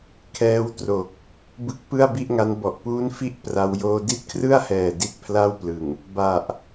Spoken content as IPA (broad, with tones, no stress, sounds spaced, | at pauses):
kʰ ɛː˦˥ w t r o˨˩ k̚ | b ɯ˥˩ k̚ p ɯ˥˩ a̯ b i˥˩ ʔ ŋ a˦˥ n b ɔ˨˩ ʔ p uː˦˥ n f i˦˥ ʔ p r a˦˥ w j oː˧ d i˦˥ t̚ kʰ r ɯ˥˩ a̯ h ɛː˨˩ d i˦˥ t̚ pʰ l a˥˩ w p l ɯ˨˩ ŋ | b a˨˩ ʔ